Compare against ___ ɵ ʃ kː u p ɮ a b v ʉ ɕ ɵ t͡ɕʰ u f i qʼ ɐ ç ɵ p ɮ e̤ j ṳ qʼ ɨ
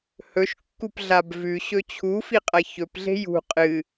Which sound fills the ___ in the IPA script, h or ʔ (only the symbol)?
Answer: h